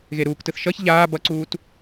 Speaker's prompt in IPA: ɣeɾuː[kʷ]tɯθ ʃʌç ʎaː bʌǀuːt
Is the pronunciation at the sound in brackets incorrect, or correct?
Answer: incorrect